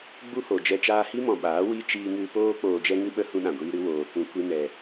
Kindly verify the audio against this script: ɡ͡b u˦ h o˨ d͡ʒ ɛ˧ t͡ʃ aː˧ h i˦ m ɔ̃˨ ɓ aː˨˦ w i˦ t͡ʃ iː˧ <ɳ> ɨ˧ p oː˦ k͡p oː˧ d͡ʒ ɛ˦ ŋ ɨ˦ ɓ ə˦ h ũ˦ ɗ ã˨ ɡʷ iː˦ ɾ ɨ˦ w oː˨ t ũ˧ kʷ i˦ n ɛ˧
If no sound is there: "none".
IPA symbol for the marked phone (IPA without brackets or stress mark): ŋ